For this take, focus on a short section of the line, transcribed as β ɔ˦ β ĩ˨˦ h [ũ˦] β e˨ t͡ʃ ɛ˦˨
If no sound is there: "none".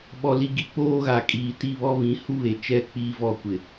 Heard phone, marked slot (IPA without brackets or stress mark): u˦